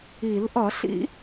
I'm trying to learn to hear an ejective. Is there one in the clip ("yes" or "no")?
no